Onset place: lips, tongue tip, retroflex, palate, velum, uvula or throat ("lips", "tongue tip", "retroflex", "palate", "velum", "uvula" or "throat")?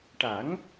retroflex